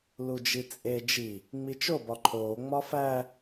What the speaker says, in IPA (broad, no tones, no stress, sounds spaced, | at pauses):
l u d͡ʒ i t͡sʼ e d͡ʒ i | ŋ͡m i t͡ʃ o b ɒ ǃʰ oː ŋ͡m ɒ f æ